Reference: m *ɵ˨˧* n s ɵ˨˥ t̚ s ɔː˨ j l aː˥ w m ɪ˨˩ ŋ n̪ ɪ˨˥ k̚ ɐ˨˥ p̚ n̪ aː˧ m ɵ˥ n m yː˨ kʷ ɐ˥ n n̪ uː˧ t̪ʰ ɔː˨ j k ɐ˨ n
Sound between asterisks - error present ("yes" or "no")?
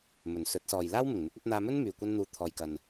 yes